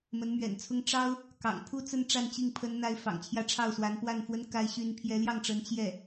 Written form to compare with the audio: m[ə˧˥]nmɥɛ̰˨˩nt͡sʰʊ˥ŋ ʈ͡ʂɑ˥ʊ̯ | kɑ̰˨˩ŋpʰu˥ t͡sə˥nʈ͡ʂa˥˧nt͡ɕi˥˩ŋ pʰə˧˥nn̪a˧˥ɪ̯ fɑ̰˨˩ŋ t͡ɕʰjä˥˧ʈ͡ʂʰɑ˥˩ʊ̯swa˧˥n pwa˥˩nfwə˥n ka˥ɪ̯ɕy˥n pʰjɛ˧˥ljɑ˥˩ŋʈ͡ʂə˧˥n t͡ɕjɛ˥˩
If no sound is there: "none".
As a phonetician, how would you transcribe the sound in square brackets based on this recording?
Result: ə˧˥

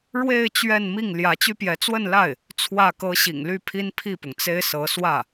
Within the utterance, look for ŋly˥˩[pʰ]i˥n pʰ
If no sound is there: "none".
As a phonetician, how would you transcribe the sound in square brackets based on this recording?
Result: pʰ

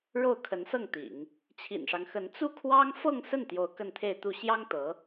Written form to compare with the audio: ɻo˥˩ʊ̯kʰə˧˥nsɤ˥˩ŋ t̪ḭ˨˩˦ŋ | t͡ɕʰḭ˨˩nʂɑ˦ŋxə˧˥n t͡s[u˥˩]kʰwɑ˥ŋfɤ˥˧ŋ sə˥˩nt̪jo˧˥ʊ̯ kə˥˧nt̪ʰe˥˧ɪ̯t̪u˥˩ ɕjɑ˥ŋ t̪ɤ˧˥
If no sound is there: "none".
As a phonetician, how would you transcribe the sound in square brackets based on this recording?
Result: u˥˩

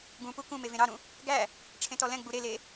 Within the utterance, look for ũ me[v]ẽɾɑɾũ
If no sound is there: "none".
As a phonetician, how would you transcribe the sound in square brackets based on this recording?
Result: v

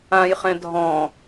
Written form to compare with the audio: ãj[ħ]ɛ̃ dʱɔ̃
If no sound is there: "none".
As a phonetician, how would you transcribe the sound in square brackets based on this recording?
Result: χ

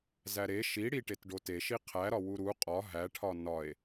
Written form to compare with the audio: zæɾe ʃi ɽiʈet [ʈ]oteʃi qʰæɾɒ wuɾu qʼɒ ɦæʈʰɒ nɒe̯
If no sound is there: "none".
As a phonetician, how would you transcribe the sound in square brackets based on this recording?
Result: ɖ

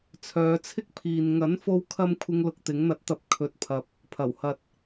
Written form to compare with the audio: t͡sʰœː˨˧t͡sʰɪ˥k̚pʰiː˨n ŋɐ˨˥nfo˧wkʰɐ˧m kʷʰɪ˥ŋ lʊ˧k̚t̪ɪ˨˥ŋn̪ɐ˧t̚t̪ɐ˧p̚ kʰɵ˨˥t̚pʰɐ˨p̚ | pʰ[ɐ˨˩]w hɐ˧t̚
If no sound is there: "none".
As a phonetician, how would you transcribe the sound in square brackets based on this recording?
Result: ɐ˨˩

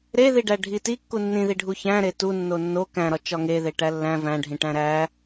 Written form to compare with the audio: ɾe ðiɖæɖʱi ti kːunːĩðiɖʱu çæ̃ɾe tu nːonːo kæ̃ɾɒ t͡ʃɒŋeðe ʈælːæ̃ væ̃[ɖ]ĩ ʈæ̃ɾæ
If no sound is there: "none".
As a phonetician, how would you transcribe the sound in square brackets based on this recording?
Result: ɖʱ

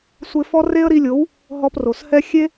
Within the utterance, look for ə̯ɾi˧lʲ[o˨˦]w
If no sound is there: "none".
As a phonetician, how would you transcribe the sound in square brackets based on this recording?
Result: o˨˦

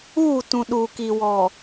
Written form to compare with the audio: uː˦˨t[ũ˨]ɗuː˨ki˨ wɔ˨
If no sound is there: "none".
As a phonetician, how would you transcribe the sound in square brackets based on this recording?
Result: ũ˨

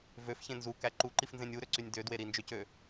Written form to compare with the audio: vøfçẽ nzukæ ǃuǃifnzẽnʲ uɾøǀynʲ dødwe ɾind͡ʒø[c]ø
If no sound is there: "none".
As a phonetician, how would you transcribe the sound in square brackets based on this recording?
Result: c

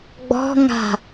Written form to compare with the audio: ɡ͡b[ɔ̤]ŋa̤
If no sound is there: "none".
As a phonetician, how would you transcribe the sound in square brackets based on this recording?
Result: ɔ̤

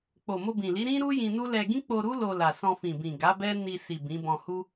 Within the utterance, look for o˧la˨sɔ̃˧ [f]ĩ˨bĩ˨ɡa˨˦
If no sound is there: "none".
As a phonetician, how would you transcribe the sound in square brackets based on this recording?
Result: f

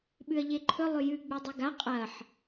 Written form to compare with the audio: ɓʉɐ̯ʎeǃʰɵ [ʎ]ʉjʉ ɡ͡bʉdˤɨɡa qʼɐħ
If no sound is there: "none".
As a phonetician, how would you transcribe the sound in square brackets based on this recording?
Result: lˠ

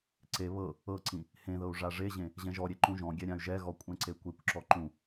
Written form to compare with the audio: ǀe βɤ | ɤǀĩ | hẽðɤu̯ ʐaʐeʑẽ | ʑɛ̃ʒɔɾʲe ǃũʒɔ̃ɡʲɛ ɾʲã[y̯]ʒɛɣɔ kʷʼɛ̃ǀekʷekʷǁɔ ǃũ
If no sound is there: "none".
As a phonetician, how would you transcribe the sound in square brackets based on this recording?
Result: y̯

